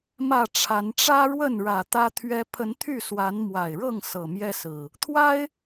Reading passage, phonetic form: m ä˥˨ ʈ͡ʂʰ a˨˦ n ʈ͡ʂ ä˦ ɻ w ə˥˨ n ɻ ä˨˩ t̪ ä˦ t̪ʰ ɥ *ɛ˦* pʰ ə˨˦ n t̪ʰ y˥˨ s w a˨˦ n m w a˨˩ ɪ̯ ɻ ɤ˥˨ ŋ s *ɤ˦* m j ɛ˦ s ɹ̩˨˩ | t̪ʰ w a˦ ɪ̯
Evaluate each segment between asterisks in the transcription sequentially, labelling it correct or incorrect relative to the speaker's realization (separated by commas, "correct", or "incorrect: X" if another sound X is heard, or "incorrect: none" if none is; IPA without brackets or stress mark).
correct, incorrect: ɤ˨˩